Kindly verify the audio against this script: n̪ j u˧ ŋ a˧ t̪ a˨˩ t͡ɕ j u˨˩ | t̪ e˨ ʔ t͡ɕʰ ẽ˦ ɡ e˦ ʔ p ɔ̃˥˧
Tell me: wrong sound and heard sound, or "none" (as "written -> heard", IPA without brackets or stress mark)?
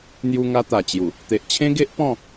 none